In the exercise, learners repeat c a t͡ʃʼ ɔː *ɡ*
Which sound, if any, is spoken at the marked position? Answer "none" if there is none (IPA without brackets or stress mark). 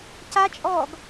ɡ